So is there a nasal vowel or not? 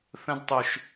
yes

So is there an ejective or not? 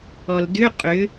yes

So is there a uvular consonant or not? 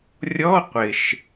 yes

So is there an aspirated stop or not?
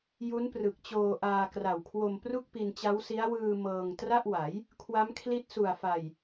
yes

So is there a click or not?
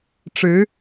no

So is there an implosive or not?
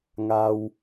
no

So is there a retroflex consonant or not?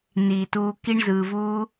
yes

